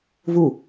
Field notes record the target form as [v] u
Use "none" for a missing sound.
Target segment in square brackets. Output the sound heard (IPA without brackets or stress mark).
v